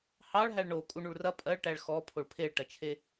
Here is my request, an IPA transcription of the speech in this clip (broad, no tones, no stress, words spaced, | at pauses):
hɑɭ ɦæɭɳo kʼuɳuɭrɐ pʼɜɭʈæɭ xɔpʰoɭ pʰeɭʈɐt͡ʃʰe